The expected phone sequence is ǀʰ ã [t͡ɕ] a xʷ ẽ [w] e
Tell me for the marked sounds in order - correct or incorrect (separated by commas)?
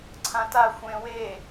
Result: incorrect, correct